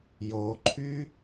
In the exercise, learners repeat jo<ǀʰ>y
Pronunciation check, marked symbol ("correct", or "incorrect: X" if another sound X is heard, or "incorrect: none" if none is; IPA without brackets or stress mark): incorrect: ǃʰ